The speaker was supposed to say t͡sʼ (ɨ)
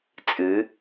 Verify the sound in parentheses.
correct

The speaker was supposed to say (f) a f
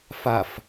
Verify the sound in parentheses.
correct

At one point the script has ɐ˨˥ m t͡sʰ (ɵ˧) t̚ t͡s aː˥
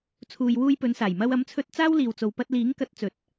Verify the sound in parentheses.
correct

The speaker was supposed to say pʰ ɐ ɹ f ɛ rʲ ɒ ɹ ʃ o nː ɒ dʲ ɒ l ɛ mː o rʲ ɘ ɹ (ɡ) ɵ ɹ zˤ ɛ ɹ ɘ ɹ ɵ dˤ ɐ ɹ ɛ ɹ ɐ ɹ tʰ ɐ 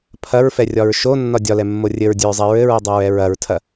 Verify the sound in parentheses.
incorrect: dʲ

